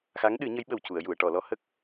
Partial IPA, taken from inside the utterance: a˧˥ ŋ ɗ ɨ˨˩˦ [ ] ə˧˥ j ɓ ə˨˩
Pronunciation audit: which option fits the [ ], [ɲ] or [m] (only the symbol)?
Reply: ɲ